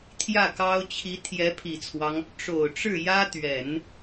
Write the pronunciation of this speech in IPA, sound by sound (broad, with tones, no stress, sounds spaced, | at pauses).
t̪ʰ j ä˥˩ k ɑ˥ ʊ̯ t͡ɕʰ i˧˥ t̪ʰ j ɛ˧˥ pʰ i˨˩ t͡sʰ w ɑ˦ ŋ | ʈ͡ʂ o˨˩ ʊ̯ ʈ͡ʂ ɻ̩˥˩ j ä˥ t̪ ɥ ɛ˨˩˦ n